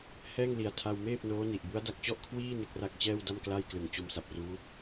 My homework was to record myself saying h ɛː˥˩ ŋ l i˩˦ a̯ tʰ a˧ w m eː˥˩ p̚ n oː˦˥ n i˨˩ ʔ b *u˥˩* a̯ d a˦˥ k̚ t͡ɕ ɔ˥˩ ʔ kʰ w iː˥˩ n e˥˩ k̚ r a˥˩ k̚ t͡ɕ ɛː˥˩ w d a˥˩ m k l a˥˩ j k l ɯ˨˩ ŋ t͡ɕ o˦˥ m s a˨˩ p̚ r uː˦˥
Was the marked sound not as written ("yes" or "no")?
yes